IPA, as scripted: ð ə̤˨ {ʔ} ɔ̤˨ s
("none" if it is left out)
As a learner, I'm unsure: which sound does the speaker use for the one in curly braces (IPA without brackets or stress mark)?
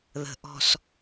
ʔ